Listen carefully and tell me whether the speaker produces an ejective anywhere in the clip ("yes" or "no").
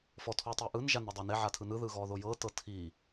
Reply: no